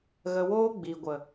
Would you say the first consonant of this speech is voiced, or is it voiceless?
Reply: voiced